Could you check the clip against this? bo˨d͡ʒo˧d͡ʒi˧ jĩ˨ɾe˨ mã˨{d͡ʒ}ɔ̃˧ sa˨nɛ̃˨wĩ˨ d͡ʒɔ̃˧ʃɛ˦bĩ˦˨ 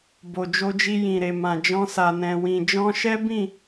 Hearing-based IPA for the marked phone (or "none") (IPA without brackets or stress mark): d͡ʒ